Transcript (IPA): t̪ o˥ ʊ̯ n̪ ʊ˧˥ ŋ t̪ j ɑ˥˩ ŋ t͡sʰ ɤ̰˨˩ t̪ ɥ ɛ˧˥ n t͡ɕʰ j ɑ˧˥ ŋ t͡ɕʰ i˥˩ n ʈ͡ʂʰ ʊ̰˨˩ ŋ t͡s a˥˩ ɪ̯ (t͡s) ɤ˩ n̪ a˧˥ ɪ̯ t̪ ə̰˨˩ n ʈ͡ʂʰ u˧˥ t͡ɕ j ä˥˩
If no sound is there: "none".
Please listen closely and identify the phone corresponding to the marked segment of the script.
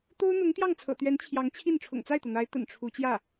t̪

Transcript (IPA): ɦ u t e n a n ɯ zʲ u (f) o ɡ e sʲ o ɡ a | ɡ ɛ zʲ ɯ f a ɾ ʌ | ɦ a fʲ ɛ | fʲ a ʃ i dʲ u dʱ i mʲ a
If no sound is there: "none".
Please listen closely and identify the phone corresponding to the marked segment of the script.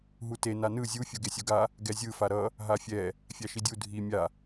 fʲ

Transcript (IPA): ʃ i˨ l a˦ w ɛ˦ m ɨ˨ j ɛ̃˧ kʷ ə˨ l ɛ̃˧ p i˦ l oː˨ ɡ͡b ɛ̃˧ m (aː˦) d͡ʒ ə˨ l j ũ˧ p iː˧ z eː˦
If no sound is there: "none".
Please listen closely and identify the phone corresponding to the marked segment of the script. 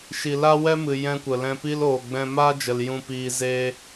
aː˦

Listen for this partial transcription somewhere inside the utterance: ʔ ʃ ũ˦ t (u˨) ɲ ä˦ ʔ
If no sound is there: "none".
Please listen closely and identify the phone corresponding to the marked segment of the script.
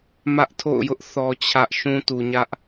u˨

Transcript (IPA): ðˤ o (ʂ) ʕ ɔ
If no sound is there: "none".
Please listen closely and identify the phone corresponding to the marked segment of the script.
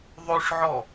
ʂ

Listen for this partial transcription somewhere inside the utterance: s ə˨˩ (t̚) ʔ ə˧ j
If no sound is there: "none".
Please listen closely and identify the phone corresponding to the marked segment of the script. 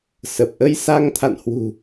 p̚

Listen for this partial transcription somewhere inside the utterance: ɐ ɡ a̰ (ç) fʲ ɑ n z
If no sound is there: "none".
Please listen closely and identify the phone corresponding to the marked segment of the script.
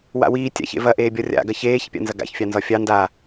ç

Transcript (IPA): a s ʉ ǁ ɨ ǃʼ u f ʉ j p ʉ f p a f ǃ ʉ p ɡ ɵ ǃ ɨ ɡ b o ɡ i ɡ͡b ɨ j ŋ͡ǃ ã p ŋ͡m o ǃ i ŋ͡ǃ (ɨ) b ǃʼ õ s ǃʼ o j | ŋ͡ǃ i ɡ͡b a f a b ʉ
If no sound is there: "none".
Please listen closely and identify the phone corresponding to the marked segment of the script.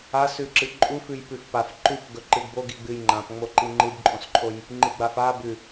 ɨ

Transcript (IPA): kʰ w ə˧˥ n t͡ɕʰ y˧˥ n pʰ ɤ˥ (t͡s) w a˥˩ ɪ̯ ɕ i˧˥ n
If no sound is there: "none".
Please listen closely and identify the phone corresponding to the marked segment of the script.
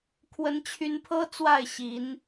t͡s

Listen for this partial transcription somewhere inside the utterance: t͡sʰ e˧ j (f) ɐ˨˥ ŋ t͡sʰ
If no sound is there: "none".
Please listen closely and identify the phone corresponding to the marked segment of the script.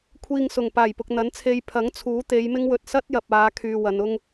pʰ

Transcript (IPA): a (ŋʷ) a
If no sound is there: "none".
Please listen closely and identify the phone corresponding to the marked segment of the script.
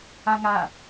ŋ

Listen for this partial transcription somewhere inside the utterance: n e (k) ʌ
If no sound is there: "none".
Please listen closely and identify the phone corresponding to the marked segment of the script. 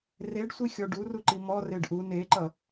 ǃ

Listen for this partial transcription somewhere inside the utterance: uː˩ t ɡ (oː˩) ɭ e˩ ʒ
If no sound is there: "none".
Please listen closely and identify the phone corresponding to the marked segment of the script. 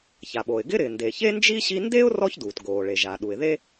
oː˩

